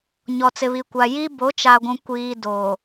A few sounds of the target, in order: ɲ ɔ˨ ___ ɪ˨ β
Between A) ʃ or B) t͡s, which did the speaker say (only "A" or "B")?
B